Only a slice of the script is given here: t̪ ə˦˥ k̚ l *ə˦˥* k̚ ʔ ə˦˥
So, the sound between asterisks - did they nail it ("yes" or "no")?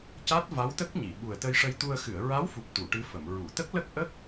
yes